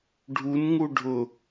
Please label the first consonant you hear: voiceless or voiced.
voiced